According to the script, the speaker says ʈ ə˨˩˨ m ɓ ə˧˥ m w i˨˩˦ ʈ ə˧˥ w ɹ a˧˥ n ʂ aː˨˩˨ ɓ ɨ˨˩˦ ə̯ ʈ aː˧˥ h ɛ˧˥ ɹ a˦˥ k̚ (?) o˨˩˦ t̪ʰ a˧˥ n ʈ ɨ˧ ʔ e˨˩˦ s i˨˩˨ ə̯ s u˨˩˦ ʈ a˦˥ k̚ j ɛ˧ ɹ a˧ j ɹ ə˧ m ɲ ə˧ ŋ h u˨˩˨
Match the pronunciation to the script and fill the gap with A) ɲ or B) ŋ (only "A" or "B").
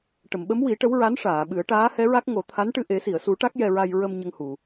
B